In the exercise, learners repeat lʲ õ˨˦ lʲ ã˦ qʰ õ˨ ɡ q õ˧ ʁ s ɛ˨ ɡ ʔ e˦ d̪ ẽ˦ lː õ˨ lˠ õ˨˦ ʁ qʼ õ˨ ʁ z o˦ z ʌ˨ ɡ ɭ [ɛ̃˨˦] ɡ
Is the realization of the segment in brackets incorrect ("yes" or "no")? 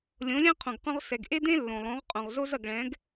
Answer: no